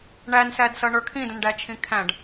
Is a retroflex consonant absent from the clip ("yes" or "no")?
no